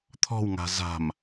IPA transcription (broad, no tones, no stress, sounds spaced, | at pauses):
t̪ʰ ɔ̤ w ŋ a̤ z a̤ m